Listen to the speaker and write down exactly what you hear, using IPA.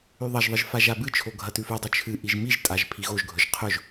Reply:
ʉðˤɐʒðˤɨʒ faʒabɨt͡ʃʰo ɡʱɐtʉfʉdˤɵ t͡ʃʰɨʔiʒ miʒtʼaʒ pʰiɣoʒɡʱɵʒ qʰɵʒ

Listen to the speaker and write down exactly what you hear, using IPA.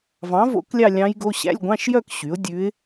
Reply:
vɑ̃˩˥ vo̰˧˥klʲɑ˥˨lʲɑ̃˧˥jɡo˧˥˧ ɕæ̰˧˥˧lʲɡʷɑ̃˧˥˧ʃjœ˥˨kɕy˩˥ʊ̯ dʲʉ˧˥ɪ̯

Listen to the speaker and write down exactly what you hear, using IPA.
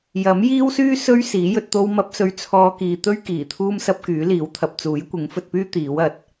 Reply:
jɐ˨˥mjiː˥wsyː˥ sɵ˥ɥ siː˨˥ jɵ˧t̚t̪o˥w mɐ˧p̚sɵ˧ɥt͡sʰɔː˧ kiː˨t̪ɵ˥ɥ kiː˨˩t̪ʰuː˥msɐ˥p̚kyː˨˥ liː˨˥wt̪ʰɐ˨p̚t͡suː˨˥j kʷɪ˨˥ŋ fɵ˧t̚pyː˥ t̪iː˨˥w ɐ˨˥t̚

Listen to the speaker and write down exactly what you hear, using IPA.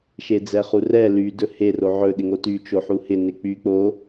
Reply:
ʃed͡zɛχurɛ ly dɵhe roʕɵ ɗɪŋoty t͡ʃoħuhɪ nɪk͡py k͡po

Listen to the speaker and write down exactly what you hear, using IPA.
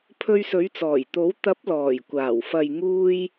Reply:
pʰɵ˧ɥsɵ˨˥ɥt͡sɔː˨˩j t̪o˨˥w t̪ɐ˨˥p̚ lɔː˨˩jkʷaː˨˩wfɐ˨j ŋuː˧j

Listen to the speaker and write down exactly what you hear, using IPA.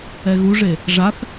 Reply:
ɛɣuʐe | ʐaθ

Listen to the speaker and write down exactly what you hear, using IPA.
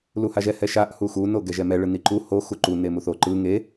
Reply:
luhaʒɛ hɛʃaʔ huxu noɡɛʒɛmɛ ɭɯniǃu ho xuǃu nemuθo ǃɯ ŋe

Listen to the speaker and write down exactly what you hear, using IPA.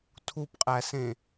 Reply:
tʰupqʼæsẽ

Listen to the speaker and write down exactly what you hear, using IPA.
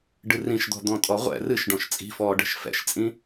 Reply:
ɖɨrĩʃd̪ɔ̤d̪ɔ̃ tʼɔʁʷɛ̰ rɨʃɖɔ̃ʃ t͡sʼi̤fɔː ɖɛ̤ʃfɛ̰ʃt͡sʼĩ

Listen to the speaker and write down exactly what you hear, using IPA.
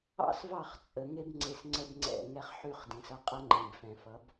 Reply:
ɑ̰˦˨svɑ˦˨χ t͡sʼə˨ŋe˦b ŋ͡ǀe˦sŋ͡ǀə˦bŋ͡ǀɛ̰˦˨ ŋɛ˦χħy˦˨χ dẽ˨sʌ˦ qʼʌ˦ŋ͡ǃẽ˨bfɛ̃˨ fʌ˨˦b

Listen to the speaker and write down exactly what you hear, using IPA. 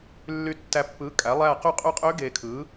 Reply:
lːy˨tːæ˨pːɯ˩˥ kʼæ˩˥lˠæ˦˨ qø˦˨qʼø˦˨qʼø˧˥ ɡe˨kʰɯ˩˥

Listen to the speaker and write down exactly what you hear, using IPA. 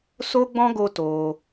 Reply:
so˦ɡ͡bɔ̃˦ ɡo˦to˧

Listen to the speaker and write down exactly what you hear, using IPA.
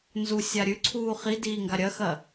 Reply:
nzu sʲaɾʲʉǀʰuː χi diːŋɡaɾʲɐxɐ

